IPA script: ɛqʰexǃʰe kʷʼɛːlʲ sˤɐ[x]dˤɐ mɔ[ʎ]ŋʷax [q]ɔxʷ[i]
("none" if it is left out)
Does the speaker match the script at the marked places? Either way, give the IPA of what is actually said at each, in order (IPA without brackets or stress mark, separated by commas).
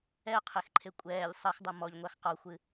x, ʎ, q, ɨ